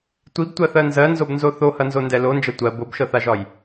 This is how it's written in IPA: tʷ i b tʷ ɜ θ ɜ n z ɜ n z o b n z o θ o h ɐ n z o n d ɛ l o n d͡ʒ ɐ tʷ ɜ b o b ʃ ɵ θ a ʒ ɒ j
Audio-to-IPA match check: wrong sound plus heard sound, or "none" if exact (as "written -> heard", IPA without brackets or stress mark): ɵ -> ɤ